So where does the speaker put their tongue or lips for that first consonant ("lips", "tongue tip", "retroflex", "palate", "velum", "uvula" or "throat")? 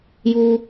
palate